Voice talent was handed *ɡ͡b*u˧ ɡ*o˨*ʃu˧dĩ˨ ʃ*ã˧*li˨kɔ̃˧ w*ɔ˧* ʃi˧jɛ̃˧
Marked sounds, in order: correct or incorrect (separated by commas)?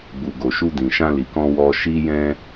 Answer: correct, correct, correct, correct